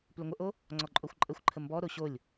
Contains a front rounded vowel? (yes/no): yes